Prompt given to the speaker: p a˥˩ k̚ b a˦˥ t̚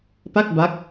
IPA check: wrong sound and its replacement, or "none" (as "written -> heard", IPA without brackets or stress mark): t̚ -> k̚